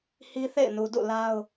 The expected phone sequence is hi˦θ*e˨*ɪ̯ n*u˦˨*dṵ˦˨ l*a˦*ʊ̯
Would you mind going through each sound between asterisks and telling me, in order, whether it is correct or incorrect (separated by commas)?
incorrect, incorrect, correct